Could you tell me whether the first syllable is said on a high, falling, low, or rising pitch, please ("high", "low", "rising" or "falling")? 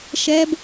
high